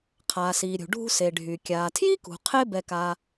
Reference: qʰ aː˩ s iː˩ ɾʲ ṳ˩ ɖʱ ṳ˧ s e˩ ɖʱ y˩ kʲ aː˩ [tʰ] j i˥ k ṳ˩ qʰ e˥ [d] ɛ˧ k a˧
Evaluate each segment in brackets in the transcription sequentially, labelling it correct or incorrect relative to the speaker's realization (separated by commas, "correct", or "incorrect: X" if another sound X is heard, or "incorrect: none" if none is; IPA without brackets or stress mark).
correct, incorrect: b